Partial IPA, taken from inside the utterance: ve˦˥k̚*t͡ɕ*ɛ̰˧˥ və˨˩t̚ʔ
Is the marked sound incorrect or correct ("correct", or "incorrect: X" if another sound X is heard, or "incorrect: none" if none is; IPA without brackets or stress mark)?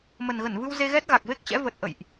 correct